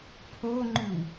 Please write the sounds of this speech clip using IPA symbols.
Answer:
pʰ o ŋ͡ǃ ʉ w

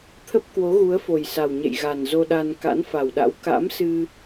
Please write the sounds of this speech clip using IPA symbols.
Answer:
t̪ʰ ə˦˥ p̚ k w o˨˦ ɣ u˨˦ ə̯ f o˨˩ j s a˨˩ w ɲ ḛ˧˨ j ɣ a˨˩ n z o˧ ɗ a˧ n k a̰˧˥ n f a˨˩ w ɗ a̰˧˥ w k a̰˧˥ m s ɨ˧

